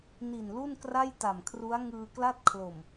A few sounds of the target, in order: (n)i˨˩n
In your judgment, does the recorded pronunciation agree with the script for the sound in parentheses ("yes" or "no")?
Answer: yes